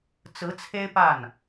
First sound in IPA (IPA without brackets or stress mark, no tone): t͡s